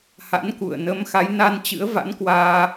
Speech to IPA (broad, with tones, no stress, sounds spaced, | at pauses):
h a̰˧˥ n k ṵ˧˨ ə̯ n ə˨˦ m x a˨˦ j n a˧ n t͡ɕ ɨ̰˧˥ ə̯ v a̰˧˥ n k w aː˧